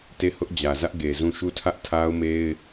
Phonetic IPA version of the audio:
te˦˨hʊ˦ʔd͡ʑä˨zä˦ʔ ɡe˨zũ˦˨ ʃu˦˨tʰä˦ʔtʰa˦ʊ̯me˦ɪ̯

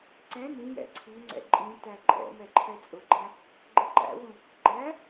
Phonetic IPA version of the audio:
ǀɛ̃ nĩjɛ̰ ǀʰiŋ͡ǀɛ̰ ǃʼĩtæ ǃʼɛ̰ mɛǃʰɛt͡sʼʊɡ͡ǃæ̃ | ɡ͡ǃəǃæ̰wũ | ɡ͡ǃæ

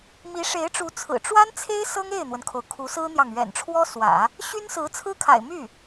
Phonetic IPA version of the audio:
mi˧˥ʂe˧˥ɪ̯ʈ͡ʂu˧˥t͡sʰɹ̩˨˩ ʈ͡ʂwa˥nt͡sʰe˥ɪ̯ sɤ˥ŋe˥˩ɪ̯n̪wə˩nkʰo˩ʊ̯ kʰu˧˥sɹ̩˥n̪jɑ˨ŋ ɥɛ̰˨˩nʈ͡ʂʰwɔ˥swä̰˨˩˦ | ɕy˥nsɹ̩˧˥ t͡sʰɹ̩˥kʰa̰˨˩ɪ̯my˥˩

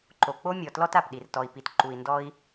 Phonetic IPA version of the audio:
ǃo˩k͡po˦mʲɔ˩ tlɔ˦t a˩pɗi˩r tɔ˩i̯pi˩t ǃu˩i̯ndɔ˦i̯

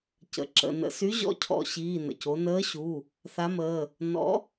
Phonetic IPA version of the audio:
cə̰˩˧˩ǁə̰˩˧˩ nə̰˧˩˧sy˨˥ ʑɔ̰˨˥cʰɔ̰˧˩˧ ɕiː˩˧˩nə̰˩co˩˧ nəː˨˥ ɕu˩˧˩ | θa˨˥məː˩˧˩ | nɔ̰˨˥

